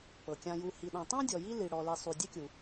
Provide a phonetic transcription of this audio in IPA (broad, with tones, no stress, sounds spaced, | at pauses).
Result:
p ɤ˩ kʲ ã˨ j u˨ h i˨ ɗ ã˨ tˤ ã˥ dʲ ɔ˨ j i˦ l i˨ ɽ ɔ˨ l i˨ sˤ u˨ dʲ e˦ kʲ u˨